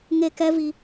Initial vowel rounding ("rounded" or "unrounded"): unrounded